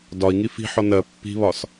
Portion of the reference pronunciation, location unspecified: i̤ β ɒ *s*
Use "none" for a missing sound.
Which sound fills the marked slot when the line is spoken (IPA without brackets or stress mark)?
s